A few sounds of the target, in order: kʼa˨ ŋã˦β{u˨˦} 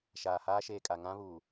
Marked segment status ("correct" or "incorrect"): incorrect